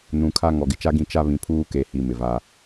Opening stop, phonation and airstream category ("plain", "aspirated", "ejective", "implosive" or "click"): aspirated